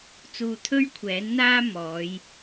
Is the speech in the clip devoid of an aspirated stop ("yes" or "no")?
no